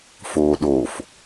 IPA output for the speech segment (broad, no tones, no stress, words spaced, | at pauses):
foːɗof